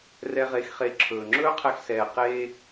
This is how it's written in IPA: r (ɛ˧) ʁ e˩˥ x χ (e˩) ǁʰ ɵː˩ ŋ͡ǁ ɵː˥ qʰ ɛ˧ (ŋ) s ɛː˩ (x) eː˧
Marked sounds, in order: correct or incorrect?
correct, incorrect, incorrect, incorrect

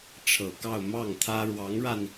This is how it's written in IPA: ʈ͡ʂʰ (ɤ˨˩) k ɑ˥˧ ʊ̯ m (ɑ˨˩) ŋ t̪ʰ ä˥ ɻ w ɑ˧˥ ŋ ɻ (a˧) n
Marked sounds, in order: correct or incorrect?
correct, incorrect, correct

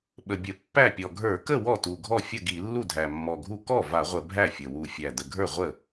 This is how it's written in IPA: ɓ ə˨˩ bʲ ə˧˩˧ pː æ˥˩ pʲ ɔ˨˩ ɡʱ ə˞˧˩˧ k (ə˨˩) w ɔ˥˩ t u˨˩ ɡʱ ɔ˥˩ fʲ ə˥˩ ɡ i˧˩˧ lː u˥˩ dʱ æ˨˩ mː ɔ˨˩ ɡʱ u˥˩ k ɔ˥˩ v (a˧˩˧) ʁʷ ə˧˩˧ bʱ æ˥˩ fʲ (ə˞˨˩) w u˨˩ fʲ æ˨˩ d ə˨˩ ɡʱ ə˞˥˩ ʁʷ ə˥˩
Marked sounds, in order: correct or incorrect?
incorrect, correct, incorrect

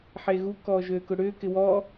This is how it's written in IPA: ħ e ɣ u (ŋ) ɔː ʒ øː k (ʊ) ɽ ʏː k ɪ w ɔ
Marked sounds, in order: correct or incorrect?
incorrect, correct

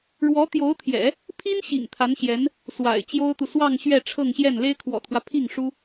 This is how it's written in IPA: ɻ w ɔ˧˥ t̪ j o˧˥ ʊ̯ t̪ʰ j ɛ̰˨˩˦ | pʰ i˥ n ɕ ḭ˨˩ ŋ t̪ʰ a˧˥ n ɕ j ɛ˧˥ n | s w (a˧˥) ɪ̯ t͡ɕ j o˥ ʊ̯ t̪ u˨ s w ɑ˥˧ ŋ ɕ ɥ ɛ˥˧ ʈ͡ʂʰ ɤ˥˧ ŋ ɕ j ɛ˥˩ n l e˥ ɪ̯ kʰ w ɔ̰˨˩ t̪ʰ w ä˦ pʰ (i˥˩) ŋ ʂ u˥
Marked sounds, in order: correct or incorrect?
incorrect, correct

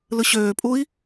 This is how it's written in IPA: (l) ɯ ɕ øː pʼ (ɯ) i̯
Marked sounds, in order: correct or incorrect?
correct, incorrect

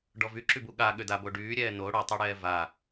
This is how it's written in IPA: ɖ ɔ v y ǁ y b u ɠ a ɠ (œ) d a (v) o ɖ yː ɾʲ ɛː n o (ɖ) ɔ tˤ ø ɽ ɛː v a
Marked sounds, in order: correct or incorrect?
incorrect, incorrect, incorrect

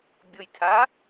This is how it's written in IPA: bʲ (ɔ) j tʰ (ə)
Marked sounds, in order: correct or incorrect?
incorrect, incorrect

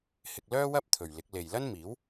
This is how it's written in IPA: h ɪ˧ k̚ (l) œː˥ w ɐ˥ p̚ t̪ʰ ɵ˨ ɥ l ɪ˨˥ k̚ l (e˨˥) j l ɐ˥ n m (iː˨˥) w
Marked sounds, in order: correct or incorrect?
correct, incorrect, correct

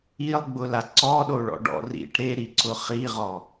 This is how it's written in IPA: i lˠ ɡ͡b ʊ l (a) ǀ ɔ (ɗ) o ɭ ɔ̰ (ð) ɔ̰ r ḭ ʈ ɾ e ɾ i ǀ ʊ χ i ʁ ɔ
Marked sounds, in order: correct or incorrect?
correct, correct, incorrect

